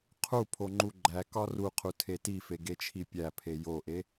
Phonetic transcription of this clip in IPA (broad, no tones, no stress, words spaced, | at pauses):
qʰu pʰoŋ͡ǃuɡ͡ǃækɒ ruqʰu tʰetife ɡet͡ʃʰipʲæpʰe joʔe